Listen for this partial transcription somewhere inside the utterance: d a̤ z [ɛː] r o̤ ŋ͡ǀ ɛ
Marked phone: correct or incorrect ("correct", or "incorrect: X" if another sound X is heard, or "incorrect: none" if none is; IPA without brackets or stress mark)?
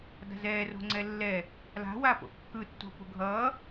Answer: correct